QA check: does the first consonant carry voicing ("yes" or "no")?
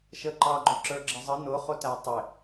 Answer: no